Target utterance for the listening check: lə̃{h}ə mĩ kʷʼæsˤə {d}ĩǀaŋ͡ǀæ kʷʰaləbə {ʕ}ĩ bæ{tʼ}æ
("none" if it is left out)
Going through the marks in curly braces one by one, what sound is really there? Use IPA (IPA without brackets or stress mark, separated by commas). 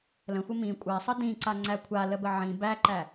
xʷ, d, ʕ, ǃ